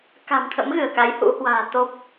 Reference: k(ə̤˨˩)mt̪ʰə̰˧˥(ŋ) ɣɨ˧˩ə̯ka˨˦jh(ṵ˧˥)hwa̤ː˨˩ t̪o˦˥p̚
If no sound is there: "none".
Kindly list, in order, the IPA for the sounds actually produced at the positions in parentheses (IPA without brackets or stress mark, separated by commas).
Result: a̤˨˩, m, ṵ˧˥